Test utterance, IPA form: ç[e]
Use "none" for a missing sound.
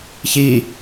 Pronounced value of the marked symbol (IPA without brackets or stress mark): i